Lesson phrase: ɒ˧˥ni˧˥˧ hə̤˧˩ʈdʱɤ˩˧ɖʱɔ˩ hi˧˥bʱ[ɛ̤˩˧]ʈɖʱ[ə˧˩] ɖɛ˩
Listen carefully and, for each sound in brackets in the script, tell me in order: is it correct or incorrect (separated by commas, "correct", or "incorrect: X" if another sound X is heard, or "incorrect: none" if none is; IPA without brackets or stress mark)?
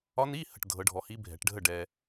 correct, incorrect: ə˥˩